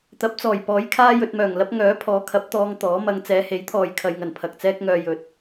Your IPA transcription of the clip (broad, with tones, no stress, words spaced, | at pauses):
t̪ɐ˨˥p̚t͡sɔː˨˩j pɔː˨˥jkʰaː˥ jɵ˧t̚mœː˨˩ŋlɐ˥p̚ ŋœː˨˥pʰɔː˨˥kʰɐ˨˥p̚t̪ɔː˧ŋ t̪ɔː˨˥mɐ˧ŋ t͡sɛː˨˧he˨˥jt̪ʰɔː˨j kʰɐ˨jŋɐ˨˩n pʰɐ˨k̚t͡sɛː˥k̚ŋœː˧ jɵ˨t̚